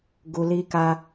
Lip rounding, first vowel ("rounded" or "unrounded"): rounded